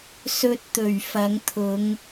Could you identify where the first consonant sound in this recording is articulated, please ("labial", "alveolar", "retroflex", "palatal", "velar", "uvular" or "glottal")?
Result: alveolar